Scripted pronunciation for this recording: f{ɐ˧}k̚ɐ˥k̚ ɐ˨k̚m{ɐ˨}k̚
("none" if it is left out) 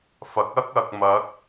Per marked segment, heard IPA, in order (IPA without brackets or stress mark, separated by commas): ɐ˨˥, ɐ˨˥